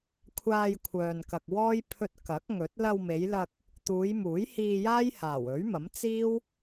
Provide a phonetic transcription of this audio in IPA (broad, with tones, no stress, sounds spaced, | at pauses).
kʷʰ aː˧ j kʷʰ œː˨ n k ɐ˨ k̚ w ɔː˥ j pʰ ɵ˧ t̚ k ɐ˨˥ k̚ ŋ ɵ˨˥ t̚ l ɐ˧ w m e˨˧ j l ɐ˧ k̚ | t̪ uː˨˧ j m uː˨˥ j h iː˧ j aː˥ j h aː˨˩ w ɵ˨˥ ɥ m ɐ˨˥ m t͡s iː˥ w